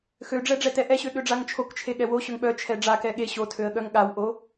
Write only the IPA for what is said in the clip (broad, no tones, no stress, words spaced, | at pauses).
xøɖ͡ʐɛ ɖ͡ʐɛtɛʔɛɕø ɠøɖ͡ʐaŋt͡ʃʰokt͡ʃʰe ɠɛwoɕøŋ ɓœ t͡ʃʰɛɖ͡ʐakɛ ɠe ɕotʰøə̯ ɠœŋɠawʔo